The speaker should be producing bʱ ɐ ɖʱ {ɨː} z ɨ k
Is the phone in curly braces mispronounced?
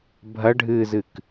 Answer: no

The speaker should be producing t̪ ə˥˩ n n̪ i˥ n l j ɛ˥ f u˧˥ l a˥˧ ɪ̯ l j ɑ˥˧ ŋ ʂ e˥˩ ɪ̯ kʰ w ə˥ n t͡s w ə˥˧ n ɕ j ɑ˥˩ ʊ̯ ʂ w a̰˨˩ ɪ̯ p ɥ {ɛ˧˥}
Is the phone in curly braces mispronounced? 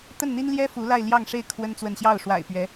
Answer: no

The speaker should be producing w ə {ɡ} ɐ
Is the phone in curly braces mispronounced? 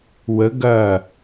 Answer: no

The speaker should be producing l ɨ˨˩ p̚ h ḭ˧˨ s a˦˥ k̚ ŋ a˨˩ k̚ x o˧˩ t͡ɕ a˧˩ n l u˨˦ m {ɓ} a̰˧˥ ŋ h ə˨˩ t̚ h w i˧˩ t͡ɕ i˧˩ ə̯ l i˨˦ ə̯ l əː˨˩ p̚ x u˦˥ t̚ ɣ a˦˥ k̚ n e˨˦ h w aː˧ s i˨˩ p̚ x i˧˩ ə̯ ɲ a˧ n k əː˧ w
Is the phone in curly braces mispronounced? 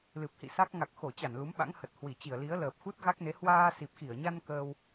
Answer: no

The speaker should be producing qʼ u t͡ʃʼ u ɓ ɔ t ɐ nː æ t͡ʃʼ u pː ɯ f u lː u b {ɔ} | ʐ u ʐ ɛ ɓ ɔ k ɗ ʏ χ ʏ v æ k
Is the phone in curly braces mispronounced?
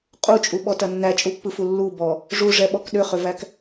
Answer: no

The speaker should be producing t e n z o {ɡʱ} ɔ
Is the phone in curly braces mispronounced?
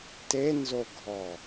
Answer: no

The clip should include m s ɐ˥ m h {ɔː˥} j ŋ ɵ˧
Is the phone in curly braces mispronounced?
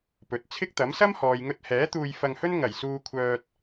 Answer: yes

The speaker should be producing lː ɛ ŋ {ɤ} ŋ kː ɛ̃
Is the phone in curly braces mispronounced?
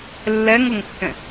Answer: no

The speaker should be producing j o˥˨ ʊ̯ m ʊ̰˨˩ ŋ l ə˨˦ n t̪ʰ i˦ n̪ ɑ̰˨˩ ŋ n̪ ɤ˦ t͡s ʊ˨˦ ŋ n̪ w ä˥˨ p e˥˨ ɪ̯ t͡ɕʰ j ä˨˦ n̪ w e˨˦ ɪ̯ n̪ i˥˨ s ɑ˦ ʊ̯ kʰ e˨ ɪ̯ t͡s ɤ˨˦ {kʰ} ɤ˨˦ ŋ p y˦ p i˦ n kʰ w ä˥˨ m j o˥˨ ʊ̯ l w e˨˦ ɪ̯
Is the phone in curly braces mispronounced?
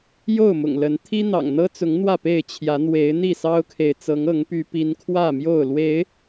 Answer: yes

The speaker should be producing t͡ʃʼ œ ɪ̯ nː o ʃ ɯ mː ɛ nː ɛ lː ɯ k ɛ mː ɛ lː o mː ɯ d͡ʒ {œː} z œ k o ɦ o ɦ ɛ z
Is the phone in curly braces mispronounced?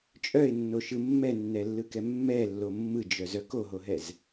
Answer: yes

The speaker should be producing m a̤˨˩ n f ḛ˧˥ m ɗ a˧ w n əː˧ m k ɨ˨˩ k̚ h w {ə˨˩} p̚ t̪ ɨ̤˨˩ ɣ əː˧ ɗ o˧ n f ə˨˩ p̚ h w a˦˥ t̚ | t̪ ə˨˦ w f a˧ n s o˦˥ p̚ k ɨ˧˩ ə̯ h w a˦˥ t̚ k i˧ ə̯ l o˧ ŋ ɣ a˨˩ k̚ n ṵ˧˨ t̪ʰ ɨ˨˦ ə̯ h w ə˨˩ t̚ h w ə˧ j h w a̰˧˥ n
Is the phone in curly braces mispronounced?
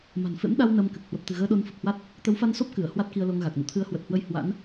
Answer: no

